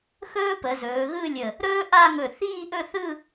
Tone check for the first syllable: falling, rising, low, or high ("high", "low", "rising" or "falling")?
high